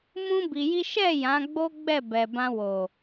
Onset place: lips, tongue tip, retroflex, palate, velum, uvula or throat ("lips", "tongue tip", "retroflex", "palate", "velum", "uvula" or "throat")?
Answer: lips